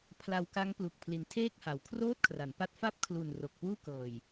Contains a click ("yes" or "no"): no